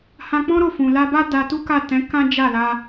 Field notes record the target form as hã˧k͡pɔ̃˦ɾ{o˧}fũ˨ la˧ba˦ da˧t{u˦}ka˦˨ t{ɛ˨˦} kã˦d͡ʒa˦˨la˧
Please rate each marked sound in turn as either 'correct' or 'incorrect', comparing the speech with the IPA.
incorrect: o˦˨, correct, incorrect: ɛ̃˨˦

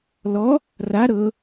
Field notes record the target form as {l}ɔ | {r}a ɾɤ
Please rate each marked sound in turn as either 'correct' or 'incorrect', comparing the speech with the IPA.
correct, correct

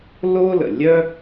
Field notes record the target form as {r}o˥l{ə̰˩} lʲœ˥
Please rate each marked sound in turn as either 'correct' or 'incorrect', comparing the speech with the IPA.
incorrect: l, correct

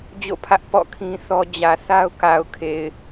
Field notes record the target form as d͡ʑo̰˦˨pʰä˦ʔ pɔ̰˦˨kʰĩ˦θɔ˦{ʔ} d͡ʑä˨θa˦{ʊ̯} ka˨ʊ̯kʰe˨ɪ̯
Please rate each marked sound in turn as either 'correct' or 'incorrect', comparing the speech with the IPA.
incorrect: none, correct

